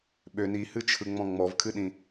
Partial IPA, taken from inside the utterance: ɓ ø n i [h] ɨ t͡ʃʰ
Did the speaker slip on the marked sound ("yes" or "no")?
no